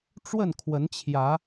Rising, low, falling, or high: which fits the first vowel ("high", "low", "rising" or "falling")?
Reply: falling